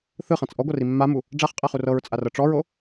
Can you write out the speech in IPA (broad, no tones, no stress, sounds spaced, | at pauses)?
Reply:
θ ɯ χ ã t͡s ʔ ɔ ɡʷ ɤ r i mː a m u | ɖ͡ʐ a χ qʼ ɛ χ u r ɤ ɹ t͡sʼ a r ɤ ʈ͡ʂ ɔ ɹ o